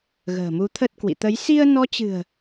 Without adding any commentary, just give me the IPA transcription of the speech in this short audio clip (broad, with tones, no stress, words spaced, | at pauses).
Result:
ɣə̤ː˨˩mu˨˦t̪ʰə˦˥t̚kwḭ˧˨ t̪ə˨˦j si˧ə̯nɔ˨˦t͡ɕɨ̤˨˩ə̯